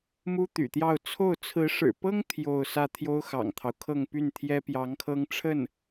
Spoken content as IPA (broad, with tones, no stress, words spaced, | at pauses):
mu˥t̪y̰˨˩t̪jɑ˥˧ʊ̯ t͡sʰo˥˩ʊ̯ t͡sʰɹ̩˧˥ʂɻ̩˨˩pɤ˥ŋ t̪ʰjo˥˧ʊ̯sä˥˩ t̪ʰjo˥ʊ̯xɑ̰˨˩ŋt̪ʰɑ˦ʊ̯kʰɤ˥˧ŋ py˥˩nt̪ʰjɛ˥ pjɑ˧˥ŋkʰɤ˥ŋʈ͡ʂʰə˥˩n